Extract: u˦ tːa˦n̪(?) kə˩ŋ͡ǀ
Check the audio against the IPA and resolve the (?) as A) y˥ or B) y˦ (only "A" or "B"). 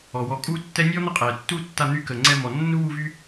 A